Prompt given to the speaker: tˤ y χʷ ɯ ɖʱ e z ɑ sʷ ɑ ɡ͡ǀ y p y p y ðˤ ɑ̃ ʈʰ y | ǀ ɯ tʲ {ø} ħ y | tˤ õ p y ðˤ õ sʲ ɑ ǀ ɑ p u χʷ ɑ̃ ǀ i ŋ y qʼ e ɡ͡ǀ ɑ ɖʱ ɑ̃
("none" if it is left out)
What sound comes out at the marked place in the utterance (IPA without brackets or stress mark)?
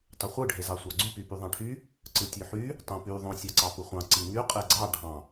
ø